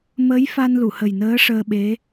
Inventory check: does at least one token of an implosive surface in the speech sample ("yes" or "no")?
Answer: yes